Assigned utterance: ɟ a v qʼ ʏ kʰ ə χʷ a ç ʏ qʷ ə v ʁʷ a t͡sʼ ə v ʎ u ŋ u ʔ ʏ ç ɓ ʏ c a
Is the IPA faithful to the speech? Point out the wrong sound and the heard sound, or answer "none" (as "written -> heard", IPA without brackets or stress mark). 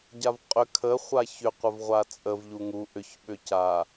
none